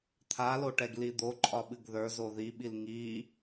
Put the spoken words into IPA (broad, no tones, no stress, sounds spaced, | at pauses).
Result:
t̪ʰ a l o ʈ ɛ ɡ l i d̪ o ǃʼ ɒ ɓ ɨ ɡ ð ə˞ z o ð i ɓ i l ŋ i